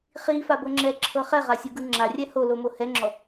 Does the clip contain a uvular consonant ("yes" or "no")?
yes